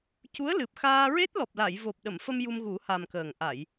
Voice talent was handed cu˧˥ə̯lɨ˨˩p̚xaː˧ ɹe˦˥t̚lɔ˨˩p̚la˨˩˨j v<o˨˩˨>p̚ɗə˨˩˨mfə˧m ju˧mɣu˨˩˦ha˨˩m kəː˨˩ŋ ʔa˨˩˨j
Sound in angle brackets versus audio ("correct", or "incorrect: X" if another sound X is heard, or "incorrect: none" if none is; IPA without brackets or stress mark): incorrect: o˨˩